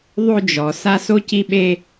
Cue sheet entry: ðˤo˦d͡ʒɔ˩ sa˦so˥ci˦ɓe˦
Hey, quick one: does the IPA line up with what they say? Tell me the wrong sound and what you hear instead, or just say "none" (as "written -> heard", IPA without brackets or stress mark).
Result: none